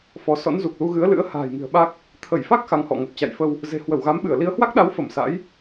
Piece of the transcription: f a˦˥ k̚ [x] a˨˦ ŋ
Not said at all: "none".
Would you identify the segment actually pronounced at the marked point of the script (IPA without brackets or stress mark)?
x